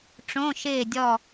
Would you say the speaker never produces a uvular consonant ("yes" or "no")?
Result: yes